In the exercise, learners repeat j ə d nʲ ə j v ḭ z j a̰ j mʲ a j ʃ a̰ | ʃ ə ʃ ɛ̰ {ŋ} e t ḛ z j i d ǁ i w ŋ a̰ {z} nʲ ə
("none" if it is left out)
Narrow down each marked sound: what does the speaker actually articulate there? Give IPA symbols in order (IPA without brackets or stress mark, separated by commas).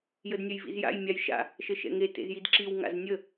ŋ, z